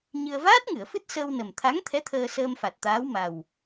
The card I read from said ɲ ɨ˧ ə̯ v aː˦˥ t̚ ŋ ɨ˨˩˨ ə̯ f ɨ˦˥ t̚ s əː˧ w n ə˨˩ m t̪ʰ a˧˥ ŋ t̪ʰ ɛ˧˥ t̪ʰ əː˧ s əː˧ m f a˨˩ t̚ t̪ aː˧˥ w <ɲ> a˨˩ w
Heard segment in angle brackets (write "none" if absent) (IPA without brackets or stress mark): m